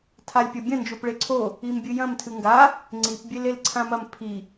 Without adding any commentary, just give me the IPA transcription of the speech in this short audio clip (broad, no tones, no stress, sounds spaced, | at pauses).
tʰ a lʲ pʲ ɐ bʲ ɐ̃ n d͡ʒ o p ɭ e ǀʰ o | i m bʲ ɨ j ɐ̃ m tʰ ɨ ŋ ɡ a | ŋ͡ǀ i p bʲ e l e l ǀʰ ã m ɐ m pʰ i